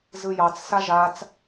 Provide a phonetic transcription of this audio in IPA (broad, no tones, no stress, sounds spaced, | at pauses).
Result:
z ɯ j ɑ t͡s s a ʒ a t͡s